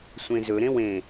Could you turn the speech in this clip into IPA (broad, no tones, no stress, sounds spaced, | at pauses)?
sʷ ẽ z ɵ ɾ ẽ w ẽ